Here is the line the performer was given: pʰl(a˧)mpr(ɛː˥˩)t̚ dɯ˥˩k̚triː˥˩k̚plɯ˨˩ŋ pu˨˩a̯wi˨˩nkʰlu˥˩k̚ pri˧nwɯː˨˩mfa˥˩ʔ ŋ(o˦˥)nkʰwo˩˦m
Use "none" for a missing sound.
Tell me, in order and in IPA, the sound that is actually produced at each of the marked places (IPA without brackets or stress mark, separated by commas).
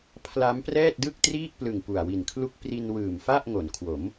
a˦˥, ɛː˥˩, o˩˦